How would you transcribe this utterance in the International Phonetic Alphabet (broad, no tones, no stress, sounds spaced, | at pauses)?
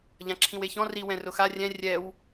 ʎ ã ǁʰ ĩ w e ç ɔ̃ r i w ɛ̃ r ʊ x a rʲ ɛ̃ rʲ ɛ w